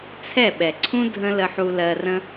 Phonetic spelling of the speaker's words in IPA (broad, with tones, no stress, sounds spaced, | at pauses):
t͡sʰ ɛ˦˨ ɓ ɛ˨ ǀʰ ũ˦ dʱ ə̃˦ l ə˧ ħ u˧ l ɜ˧ r ə̃˦